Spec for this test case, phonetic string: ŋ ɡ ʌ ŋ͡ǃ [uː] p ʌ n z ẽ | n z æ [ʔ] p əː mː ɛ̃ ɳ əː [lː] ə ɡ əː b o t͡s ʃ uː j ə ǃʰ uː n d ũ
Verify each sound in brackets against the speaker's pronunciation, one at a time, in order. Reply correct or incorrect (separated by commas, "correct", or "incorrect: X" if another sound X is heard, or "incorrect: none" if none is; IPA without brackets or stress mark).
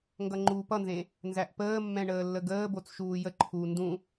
correct, correct, correct